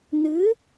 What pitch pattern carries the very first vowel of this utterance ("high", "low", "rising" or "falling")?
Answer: rising